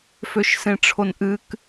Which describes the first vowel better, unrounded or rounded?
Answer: rounded